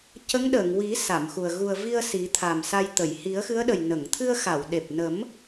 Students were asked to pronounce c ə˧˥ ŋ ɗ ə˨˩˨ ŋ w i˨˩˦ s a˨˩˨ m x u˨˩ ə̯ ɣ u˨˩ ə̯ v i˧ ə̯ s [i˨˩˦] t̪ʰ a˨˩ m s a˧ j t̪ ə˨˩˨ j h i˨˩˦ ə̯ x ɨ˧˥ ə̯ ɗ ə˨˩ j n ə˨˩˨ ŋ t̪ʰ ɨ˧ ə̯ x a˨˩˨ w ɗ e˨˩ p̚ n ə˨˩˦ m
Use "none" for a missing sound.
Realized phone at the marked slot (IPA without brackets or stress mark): i˨˩˦